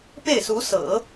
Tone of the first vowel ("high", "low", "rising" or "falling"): falling